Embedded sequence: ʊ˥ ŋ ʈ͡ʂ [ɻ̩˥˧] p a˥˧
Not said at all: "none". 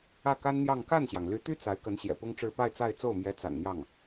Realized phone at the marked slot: ɻ̩˥˧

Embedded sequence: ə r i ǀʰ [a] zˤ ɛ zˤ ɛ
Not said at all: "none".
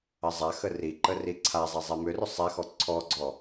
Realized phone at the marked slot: a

